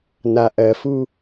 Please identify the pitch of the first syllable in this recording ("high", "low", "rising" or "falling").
low